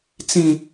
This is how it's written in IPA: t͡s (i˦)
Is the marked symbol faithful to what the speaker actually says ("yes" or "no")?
no